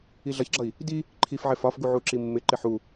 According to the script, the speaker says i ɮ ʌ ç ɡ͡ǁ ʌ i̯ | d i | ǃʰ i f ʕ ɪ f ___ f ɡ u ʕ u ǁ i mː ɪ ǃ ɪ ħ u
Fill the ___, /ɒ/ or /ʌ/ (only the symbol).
ɒ